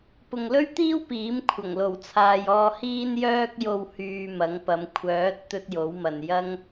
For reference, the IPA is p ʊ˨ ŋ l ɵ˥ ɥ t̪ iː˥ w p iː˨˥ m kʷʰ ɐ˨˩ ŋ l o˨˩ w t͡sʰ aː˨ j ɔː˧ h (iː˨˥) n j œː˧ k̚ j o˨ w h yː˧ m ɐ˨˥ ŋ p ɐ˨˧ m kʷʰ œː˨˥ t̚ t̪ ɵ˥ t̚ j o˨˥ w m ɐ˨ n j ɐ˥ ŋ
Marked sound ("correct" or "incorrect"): incorrect